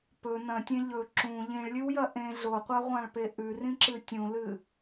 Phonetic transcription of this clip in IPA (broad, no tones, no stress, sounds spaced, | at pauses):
p ɵ n ɐ̃ tʲ ẽ ʎ ɵ ǁ ũ ʎ ĩ ɭ lʲ ɨ w j ɐ ʔ ẽ ɮ o qʷ a ʁʷ ã ɭ p e ʔ ʉ r ĩ ǁ ɨ tʲ ũ l ɨ